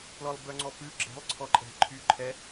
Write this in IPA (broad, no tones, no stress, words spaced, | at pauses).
plɔlˠbœŋ͡ǀɔpʉ ɡ͡ǁɛ̤lˠ ǀʰɔǃʼɛ̤ ǃʰy ǃʰɛ